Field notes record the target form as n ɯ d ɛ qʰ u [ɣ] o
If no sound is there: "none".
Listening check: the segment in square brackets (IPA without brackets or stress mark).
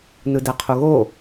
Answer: ɣ